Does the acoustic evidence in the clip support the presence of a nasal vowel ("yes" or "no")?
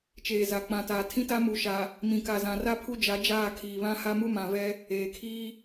yes